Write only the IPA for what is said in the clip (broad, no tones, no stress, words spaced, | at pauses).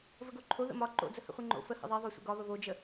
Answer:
vəɡoǃʰo ðə̰mɒ ǃo̰ d͡zəhə̰χʷiŋ͡ǃo̰ fə hə̰ðˤiðˤo sʷə̰ɡɒβə βod͡ʒə